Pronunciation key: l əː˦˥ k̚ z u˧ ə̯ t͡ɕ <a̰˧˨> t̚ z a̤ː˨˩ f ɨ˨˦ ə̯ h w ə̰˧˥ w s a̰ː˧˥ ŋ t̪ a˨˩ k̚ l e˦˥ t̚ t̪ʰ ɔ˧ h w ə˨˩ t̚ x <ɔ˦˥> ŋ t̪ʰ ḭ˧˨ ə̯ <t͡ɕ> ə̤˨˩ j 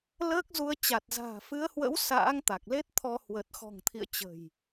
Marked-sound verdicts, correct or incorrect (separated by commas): incorrect, incorrect, correct